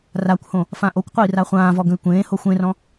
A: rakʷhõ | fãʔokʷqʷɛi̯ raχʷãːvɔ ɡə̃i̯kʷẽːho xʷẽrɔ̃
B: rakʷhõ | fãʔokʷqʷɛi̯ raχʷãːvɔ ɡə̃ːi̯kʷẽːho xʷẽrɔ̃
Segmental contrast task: A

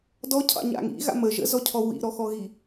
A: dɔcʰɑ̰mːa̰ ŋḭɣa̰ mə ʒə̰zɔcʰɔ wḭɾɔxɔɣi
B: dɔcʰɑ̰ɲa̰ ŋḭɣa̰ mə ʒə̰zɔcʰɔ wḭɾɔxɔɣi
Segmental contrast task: B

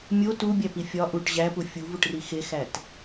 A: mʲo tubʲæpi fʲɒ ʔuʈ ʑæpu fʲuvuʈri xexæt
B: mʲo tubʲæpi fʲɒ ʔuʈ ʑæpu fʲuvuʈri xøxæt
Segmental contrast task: A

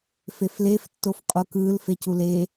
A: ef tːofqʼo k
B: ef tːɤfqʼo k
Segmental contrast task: A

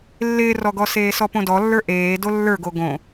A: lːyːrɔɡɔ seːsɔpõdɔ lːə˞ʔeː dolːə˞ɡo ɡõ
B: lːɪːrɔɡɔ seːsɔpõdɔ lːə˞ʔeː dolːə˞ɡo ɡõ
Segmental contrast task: B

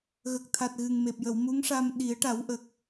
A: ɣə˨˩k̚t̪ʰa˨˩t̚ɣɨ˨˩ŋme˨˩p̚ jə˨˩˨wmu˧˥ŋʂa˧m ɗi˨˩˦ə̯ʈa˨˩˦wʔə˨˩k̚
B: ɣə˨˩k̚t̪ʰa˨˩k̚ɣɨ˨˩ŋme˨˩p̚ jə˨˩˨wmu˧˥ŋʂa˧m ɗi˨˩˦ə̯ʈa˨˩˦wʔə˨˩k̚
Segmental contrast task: A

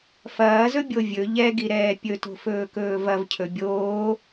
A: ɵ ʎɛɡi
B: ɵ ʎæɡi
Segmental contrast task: A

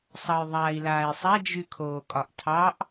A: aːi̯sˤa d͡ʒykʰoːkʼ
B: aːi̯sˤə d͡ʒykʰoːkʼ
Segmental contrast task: A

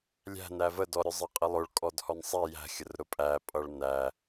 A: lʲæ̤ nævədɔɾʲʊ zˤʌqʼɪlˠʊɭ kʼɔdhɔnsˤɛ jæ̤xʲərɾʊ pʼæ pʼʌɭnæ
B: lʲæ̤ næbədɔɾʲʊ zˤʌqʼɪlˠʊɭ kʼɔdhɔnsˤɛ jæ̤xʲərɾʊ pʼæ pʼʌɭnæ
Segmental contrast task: A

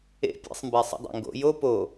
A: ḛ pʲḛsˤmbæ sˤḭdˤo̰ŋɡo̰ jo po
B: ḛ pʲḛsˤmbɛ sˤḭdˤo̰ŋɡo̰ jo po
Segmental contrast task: A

